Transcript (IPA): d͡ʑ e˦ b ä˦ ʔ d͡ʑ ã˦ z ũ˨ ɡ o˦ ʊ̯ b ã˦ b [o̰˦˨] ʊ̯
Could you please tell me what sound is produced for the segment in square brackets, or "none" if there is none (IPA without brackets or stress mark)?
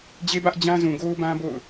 o̰˦˨